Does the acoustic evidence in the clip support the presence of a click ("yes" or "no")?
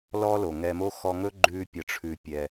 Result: yes